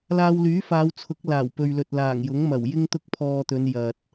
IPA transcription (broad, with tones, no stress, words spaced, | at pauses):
laː˧wlyː˨˥faː˨˧wt͡sʰʊ˨˥k̚ laː˨˩wpɵ˨ɥlɵ˨t̚ laː˨˩ŋjʊ˨˥ŋmɐ˨˩w jɪ˥ŋt̪ʊ˥k̚pʰɔː˧t̪ɵ˨˧n jɐ˨t̚